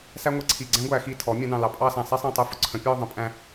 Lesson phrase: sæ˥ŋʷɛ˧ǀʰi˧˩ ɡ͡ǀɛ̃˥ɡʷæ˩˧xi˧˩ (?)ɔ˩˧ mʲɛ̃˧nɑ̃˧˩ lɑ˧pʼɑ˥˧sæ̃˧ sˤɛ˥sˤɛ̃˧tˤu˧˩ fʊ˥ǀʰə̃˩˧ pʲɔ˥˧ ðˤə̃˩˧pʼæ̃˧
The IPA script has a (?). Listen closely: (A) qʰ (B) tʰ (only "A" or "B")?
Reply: B